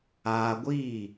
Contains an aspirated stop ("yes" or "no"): no